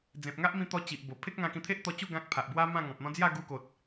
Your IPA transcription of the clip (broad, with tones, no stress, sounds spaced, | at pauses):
d͡z ẽ˨ p̚ ŋ a˦ ʔ m ĩ˧ t̪ ɔ˧ t͡ɕ i˨ ʔ b o˨˩ pʰ e˦ k̚ ŋ ã˧ k ĩ˧ t̪ʰ e˦ ʔ t̪ ɔ˧ t͡ɕ u˥˧ ɡ ã˦ k̚ pʰ a˨ ʔ b w a˦ m ã˥˧ ŋ ɔ̃˨ p̚ n̪ ɔ̃˦ d͡z j a˥˧ ɡ u˧ k o˨ t̚